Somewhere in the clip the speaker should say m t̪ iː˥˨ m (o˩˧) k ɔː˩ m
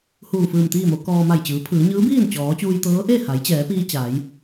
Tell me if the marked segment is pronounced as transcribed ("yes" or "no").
yes